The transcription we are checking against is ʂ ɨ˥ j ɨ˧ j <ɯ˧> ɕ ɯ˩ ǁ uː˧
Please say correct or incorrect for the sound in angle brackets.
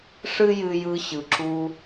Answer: correct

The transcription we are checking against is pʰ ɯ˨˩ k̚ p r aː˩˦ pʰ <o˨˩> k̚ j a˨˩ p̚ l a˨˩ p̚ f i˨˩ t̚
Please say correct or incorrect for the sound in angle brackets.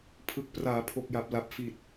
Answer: correct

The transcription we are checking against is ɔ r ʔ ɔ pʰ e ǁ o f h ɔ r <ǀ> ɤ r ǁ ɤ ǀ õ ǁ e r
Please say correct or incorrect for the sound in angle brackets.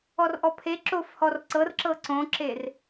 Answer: correct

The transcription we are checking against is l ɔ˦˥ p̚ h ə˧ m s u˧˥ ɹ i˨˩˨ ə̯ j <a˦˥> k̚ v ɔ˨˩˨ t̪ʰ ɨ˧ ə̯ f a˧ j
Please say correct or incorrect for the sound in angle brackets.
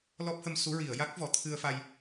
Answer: correct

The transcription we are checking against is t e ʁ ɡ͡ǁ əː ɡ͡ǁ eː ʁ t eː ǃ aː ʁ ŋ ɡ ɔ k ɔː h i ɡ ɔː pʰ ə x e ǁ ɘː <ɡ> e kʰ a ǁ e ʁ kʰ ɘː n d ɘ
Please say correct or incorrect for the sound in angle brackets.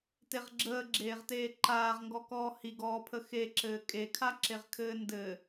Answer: incorrect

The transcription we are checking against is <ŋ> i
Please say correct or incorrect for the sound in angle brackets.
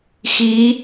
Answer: incorrect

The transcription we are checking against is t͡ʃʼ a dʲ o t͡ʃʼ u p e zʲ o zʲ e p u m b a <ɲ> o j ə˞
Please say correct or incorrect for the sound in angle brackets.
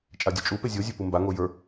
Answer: incorrect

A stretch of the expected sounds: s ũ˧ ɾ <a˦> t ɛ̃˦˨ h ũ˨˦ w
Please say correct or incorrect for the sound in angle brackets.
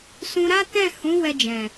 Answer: correct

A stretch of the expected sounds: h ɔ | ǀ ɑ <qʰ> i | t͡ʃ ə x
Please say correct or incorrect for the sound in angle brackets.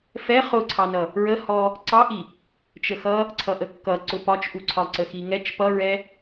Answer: incorrect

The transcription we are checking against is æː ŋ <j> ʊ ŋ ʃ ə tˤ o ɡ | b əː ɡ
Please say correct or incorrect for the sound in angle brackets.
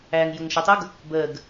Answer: correct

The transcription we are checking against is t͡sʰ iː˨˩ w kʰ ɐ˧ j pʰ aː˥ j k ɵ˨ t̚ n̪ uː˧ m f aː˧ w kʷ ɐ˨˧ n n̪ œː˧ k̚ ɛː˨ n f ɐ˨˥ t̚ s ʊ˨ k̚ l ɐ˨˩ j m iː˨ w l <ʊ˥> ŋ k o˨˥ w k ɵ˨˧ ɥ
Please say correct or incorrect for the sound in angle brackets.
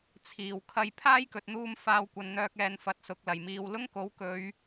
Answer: correct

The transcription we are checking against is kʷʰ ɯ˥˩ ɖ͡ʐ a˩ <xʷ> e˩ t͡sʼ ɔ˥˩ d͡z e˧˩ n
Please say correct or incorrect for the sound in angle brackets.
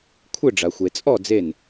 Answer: correct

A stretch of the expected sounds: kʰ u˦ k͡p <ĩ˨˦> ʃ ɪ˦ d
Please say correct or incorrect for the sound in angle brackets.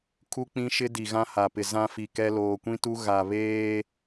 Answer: incorrect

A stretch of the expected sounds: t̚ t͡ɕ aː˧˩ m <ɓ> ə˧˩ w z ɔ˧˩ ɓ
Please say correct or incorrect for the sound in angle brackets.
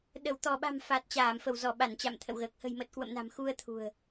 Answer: incorrect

